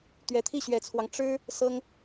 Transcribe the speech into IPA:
t̪ ɥ ɛ˨˩ t̪ʰ i˥˩ ɕ ɥ ɛ˨˩ t͡sʰ w ɑ˦ ŋ ʈ͡ʂ ɻ̩˥ | s ɤ˥ ŋ

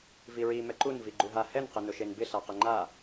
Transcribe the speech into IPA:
v i ɹ i m ɛ ǃ u n v i ɡ͡ǃ u ɦ a h ɛ n q ɪ n ʊ ʃ e n b ɪ ɬ a q ɪ ŋ͡ǃ a

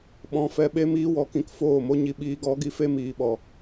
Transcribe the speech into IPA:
ɓ ɔ̃˧ f ɛ˧ ɓ e˦ m iː˧ w ɔ˨ k ĩ˧ k f oː˦˨ m o˦ ɲ i˧ ɓ iː˧ ɡ ɔ˨˦ ɡ i˧ f e˦ m iː˨ ɓ ɔ˨

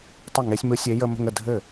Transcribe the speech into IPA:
tˤ ɯ˥˩ ŋ e˧˥ sʲ m ɯ˧˥ sʲ e˧˥ j ə˧ m ə̤˧ ŋ ə˥˩ dʱ ɘ˥˩

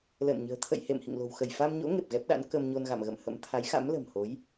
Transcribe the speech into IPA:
l ə̰ː˧˨ n ɲ ə̤ː˨˩ t̪ʰ ə̰˧˨ j h ḛ˧˨ m h ḭ˧˨ ŋ l o̤˨˩ w x ə˧˩ j f a˧ m ɲ o̰˧˥ ŋ e˨˩ p̚ ɣ ɛ˦˥ p̚ ɗ a̰˧˥ n k ə˧ m ɲ o˧ n ɣ a̰˧˨ m ɣ ə̰˧˨ m h ə̰˧˥ m t̪ʰ a˨˦ j x a̰˧˥ m l ə̤˨˩ m h o˨˦ j

